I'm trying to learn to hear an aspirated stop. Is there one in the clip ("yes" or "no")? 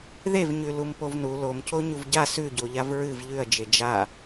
no